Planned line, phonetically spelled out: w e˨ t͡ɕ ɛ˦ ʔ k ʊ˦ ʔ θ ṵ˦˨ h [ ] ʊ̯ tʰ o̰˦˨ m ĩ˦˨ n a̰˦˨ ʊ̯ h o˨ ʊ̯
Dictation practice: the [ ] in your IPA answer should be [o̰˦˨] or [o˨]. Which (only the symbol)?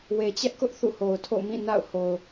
o˨